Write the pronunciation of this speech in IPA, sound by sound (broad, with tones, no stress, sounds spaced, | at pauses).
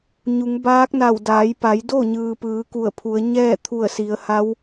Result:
ɲ u˩˧ ŋ b aː˧˥ k̚ n a˧˩ w d aː˩˧ j p a˩˧ j d o˥˨ ɲ ɯː˩ p ɯː˩˧ k u˧˩ ə̯ pʰ u˩˧ ə̯ ɲ ɛː˥˨ t̪ʰ u˧˩ ə̯ s i˩˧ ə̯ h a˧˥ w